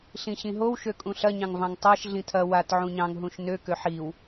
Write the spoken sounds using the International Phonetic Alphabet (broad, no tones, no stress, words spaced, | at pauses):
ɬĩɕĩɦow ʃøkʼũɬɐ ɲɑ̃ŋvɑ̃ŋtˤaʃ ɮĩtʰɐ wat ʕũɲɑ̃ŋ ɦũʃnø køħiw